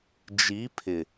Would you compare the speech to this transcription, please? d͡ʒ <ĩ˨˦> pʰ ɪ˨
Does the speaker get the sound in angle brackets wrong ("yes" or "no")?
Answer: yes